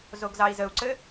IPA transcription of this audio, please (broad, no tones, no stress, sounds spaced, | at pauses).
z o ɡ z ɑ i̯ z ə u̯ ǀ ɘ